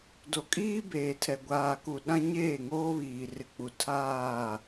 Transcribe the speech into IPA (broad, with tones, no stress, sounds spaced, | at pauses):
d o˨ kʼ iː˦ b eː˨ tʰ ɛ˨ ɡʷ aː˨ k u˨ ɗ ã˦ ɲ eː˦˨ ŋ oː˦ β iː˨ r ɪ˨ k͡p u˨ tʰ aː˦˨